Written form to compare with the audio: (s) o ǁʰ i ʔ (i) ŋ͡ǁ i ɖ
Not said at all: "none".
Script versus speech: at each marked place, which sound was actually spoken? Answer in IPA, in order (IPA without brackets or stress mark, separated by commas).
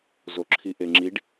z, e